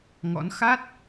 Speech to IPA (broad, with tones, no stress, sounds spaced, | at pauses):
ŋ ɔ̰˧˥ n x a˦˥ t̚